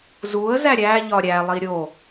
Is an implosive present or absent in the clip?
absent